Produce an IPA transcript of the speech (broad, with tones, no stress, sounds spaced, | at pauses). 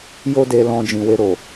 j o˦ d e˧ l ɔ̃˧ d͡ʒ ĩ˨ w e˧ ɾ o˨